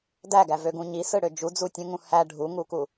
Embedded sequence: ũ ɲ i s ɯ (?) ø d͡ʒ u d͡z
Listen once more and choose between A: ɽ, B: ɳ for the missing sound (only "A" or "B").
A